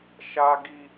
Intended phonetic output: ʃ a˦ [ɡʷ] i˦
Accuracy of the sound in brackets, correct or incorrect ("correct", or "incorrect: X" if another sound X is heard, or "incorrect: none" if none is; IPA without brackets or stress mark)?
incorrect: ɡ